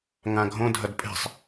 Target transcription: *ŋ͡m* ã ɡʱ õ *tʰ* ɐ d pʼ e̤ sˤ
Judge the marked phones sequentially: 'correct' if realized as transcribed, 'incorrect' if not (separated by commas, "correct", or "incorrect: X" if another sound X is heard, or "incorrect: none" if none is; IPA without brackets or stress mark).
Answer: incorrect: ŋ, incorrect: dʱ